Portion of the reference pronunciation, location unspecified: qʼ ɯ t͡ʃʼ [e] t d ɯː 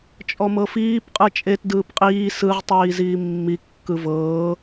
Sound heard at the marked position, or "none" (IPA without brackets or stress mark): e